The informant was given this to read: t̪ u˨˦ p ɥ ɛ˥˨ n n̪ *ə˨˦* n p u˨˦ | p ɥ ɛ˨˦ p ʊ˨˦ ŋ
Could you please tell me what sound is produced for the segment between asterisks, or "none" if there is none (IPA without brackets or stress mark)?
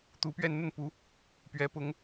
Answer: ə˥˨